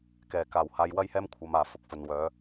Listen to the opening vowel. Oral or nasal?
oral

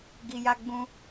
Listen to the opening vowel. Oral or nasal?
oral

